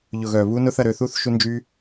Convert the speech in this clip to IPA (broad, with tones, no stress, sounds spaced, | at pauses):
ʎ ʊ˨ ɣ œ˨ β u˧ n ʊ˦ θ ɐ˧ ɾ ø˧ θ u˦ θ ʃ u˧ n d͡ʒ y˧